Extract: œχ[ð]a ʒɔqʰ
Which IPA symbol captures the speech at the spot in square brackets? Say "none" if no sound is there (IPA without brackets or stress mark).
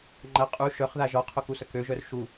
ð